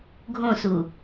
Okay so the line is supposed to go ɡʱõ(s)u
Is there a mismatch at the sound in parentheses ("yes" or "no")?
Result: no